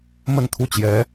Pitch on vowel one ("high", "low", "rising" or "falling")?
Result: falling